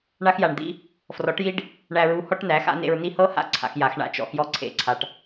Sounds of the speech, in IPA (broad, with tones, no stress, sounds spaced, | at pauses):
ɳ a˧ x j a˨ ɳ d̪ ḭ˧ | f r ɔ˨˦ ʈ j i˦ ɖ | ɳ æ˧ ɹ u˧ h ɔ˦ ʈ n æ˨˦ x a̰˦ n ḛ˧ ɹ n i˦ h ɤ˦ h a̰˦˨ ǀʰ a̰˧ x j a˨˦ x ɳ a̰˧ t͡ʃ ɔ̰˧ x j ɔ˦˨ ǀʰ ḛ˧ ǀʰ a˧ ʈ